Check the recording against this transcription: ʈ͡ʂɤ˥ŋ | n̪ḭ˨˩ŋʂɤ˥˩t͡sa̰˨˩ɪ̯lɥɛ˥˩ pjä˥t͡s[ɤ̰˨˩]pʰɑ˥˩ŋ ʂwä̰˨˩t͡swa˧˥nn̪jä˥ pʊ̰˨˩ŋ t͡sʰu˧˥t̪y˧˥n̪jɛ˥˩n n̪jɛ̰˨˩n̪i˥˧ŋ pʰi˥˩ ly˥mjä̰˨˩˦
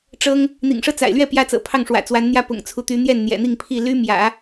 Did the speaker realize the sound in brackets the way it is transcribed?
yes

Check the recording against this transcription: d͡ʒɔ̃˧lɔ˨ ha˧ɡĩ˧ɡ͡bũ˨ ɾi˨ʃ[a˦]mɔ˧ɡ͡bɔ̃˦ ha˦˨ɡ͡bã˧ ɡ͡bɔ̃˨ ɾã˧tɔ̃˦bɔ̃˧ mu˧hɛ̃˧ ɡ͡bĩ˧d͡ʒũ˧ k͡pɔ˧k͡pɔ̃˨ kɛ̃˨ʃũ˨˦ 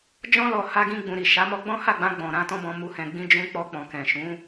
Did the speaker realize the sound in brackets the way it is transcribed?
no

